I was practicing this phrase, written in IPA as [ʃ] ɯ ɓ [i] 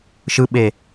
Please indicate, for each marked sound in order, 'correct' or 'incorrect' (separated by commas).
correct, incorrect